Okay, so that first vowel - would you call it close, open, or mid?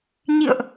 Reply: close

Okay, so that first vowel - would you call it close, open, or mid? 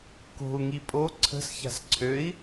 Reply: mid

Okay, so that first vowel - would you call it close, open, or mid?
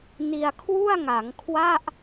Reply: close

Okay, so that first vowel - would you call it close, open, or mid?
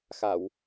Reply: open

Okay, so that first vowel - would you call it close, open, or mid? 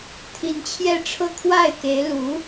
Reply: close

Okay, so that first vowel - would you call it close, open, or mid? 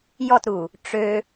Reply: mid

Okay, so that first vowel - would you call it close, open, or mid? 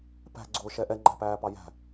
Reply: open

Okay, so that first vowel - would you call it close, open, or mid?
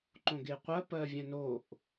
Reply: mid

